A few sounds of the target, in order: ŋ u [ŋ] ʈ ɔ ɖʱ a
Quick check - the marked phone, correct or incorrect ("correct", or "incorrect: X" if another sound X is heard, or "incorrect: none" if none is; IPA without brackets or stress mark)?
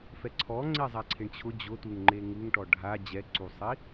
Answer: correct